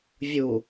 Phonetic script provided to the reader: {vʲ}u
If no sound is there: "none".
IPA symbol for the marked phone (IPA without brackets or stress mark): vʲ